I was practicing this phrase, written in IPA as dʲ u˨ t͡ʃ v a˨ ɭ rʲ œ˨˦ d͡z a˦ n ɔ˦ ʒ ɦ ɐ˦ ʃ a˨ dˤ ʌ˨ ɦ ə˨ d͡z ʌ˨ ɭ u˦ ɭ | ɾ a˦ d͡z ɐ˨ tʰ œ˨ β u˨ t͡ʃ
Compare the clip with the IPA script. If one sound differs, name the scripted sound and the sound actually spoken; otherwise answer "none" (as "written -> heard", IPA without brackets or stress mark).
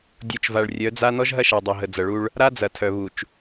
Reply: none